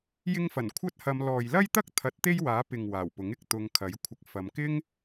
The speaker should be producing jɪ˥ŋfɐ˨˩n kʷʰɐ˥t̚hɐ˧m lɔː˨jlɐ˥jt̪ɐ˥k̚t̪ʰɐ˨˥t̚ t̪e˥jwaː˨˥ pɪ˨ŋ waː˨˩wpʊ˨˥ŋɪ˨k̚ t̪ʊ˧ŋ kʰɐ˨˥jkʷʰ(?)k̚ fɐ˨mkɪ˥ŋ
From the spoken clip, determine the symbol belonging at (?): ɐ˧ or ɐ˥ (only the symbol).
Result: ɐ˧